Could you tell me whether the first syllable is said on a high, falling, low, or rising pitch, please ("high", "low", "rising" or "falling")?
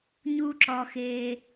high